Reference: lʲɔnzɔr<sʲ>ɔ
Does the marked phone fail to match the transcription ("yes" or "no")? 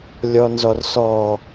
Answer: yes